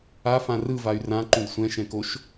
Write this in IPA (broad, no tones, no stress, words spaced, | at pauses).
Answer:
afã rɯvay̯ rãǃũd sʷɛ̃ʃɛ̃koʃ